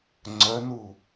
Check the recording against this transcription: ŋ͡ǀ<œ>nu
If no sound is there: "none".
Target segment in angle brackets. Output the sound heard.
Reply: œ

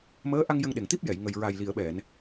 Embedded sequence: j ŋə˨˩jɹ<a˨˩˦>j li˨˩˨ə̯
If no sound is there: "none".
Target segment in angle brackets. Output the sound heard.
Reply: a˨˩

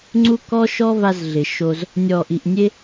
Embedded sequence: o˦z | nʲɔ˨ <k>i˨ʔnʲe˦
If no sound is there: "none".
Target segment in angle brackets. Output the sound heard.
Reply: ʔ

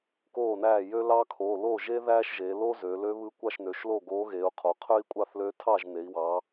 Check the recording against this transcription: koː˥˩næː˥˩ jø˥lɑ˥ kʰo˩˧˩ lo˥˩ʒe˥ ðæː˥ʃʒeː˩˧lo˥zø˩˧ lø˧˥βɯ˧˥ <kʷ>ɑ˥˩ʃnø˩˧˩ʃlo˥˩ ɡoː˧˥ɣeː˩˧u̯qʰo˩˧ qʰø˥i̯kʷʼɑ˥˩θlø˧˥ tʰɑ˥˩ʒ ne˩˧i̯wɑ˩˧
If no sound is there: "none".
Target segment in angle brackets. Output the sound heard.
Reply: kʷ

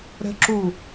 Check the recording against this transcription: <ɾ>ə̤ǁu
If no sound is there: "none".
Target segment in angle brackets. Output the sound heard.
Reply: ɾ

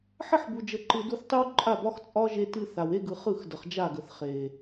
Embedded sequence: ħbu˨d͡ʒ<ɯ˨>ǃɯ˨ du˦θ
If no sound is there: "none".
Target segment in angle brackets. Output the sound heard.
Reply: ə˨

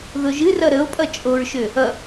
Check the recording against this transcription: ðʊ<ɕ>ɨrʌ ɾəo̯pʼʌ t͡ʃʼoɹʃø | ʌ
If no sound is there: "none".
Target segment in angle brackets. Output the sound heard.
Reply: ʒ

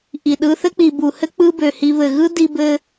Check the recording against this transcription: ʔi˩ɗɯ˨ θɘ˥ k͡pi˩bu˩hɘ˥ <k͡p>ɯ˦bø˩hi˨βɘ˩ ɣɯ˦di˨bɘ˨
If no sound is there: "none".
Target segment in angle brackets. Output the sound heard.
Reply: k͡p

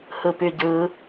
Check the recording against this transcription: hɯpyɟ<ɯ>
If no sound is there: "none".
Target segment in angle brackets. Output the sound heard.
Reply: ɯ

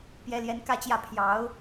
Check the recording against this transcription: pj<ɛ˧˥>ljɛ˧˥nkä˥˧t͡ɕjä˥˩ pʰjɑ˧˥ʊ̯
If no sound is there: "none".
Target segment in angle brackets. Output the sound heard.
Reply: ɛ˧˥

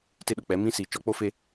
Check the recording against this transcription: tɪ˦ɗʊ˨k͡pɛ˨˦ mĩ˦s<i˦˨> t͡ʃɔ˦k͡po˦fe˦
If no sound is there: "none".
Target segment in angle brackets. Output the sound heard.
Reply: i˨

